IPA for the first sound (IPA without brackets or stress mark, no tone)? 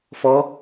f